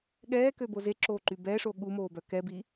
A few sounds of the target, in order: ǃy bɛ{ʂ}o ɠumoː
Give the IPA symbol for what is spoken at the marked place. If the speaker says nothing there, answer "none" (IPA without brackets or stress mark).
ʂ